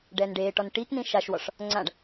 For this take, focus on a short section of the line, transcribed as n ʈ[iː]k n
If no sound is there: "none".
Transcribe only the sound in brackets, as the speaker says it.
iː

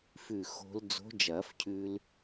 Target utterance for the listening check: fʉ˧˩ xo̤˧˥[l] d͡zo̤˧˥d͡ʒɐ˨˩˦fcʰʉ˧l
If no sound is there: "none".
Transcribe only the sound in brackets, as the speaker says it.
l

